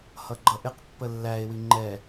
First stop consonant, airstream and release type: click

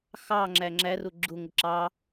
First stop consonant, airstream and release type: click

